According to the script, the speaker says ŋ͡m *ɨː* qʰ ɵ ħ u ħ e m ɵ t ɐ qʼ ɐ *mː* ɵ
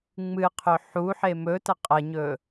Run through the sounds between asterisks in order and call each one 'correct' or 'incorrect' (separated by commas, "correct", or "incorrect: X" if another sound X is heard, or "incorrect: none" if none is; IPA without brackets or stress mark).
incorrect: ɨ, incorrect: ɲ